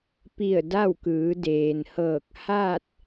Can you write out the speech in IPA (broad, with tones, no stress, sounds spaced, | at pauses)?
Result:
p i˧˩ ə̯ d a˥˨ w k ɯː˩˧ d eː˩ n h ɤː˧˩ k̚ h a˥˨ t̚